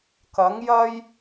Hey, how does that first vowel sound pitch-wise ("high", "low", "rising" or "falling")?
rising